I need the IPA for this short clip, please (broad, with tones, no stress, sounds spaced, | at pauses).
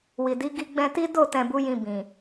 w i˨ d i˨˦ ɡ i˧ ɡ͡b ɛ̃˧ t i˦ d o˦˨ t ɛ̃˨ b u˨˦ j ĩ˧ b ĩ˨